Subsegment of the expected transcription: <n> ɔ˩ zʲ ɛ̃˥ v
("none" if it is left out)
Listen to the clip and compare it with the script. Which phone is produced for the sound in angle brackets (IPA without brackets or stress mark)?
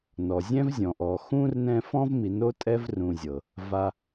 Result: n